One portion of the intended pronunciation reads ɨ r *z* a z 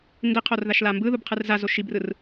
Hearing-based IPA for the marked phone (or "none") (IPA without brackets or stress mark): z